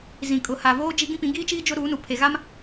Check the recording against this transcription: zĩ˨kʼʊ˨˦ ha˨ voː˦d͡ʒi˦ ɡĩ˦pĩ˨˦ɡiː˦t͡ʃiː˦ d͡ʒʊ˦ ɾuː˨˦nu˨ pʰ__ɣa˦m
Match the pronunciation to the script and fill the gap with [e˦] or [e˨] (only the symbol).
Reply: e˨